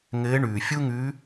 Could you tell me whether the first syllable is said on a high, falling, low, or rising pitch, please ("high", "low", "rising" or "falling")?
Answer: rising